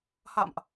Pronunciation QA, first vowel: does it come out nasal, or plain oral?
oral